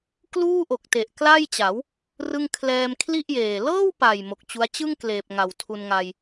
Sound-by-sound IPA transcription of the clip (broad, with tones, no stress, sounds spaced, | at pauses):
k l uː˥˩ ʔ o˨˩ k̚ t e˨˩ ʔ k l a˥˩ j t͡ɕ a˩˦ w | r ɯ˥˩ ŋ kʰ l ɛː˧ m kʰ l i˥˩ ʔ j eː˨˩ l ɤː˥˩ w p a˨˩ j m o˨˩ k̚ t͡ɕ u˦˥ a̯ t͡ɕ ɯ˥˩ ŋ k l eː˨˩ p̚ ŋ a˨˩ w tʰ u˧ n ŋ a˧ j